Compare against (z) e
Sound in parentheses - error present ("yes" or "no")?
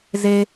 no